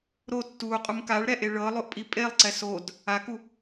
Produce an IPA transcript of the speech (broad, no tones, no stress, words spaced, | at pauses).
ɾo tːuqʼum kaɭɾɛʔe ɭɤlˠoʔpʼi pʼelˠǀɛ sod | aku